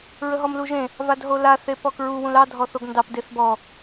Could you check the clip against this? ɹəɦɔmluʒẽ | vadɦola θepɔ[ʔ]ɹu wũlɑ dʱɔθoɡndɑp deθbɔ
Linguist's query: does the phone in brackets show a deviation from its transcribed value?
yes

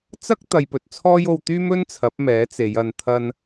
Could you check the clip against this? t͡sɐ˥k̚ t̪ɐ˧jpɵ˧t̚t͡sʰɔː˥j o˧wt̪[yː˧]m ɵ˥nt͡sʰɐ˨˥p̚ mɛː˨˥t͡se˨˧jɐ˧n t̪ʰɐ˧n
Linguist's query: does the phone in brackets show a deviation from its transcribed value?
yes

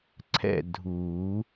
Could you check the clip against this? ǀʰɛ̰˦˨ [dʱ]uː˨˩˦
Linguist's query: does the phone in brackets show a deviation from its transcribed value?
no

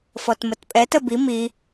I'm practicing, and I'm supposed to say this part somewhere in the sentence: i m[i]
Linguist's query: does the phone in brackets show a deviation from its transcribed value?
no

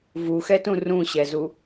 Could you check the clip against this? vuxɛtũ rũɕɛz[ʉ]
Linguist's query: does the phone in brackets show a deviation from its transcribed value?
yes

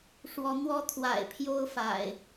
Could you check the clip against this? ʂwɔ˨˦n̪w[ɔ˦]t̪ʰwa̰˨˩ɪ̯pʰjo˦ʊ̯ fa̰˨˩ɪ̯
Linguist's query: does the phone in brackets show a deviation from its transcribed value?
no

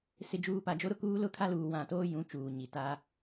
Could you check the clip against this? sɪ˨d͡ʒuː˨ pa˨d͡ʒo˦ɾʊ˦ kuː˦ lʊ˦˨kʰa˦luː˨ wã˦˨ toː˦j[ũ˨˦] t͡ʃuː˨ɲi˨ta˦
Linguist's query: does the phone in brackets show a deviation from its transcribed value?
no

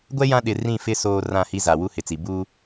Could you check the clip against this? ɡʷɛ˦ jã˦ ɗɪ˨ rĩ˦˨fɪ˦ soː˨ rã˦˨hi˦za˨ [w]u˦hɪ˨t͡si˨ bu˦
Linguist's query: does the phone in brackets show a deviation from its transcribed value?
no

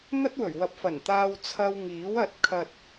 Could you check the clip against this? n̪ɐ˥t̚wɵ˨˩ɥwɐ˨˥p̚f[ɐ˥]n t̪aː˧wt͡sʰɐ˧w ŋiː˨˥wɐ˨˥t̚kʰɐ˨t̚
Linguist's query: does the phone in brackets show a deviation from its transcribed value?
yes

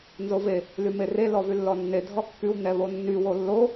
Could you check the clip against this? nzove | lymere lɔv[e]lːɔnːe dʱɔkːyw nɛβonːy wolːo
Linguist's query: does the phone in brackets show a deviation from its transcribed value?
yes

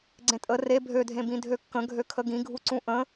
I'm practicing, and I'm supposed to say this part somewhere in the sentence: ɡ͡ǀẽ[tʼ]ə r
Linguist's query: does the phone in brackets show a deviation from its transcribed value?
no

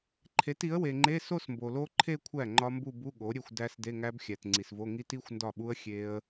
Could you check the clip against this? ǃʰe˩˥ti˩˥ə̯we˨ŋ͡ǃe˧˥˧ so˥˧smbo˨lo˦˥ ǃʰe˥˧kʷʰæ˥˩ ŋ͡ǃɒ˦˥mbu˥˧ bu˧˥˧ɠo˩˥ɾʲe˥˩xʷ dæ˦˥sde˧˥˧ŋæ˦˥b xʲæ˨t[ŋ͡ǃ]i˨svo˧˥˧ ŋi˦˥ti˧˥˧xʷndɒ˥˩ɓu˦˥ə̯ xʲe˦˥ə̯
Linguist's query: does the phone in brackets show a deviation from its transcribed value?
yes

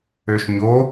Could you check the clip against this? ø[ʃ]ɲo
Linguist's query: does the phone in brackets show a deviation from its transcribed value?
no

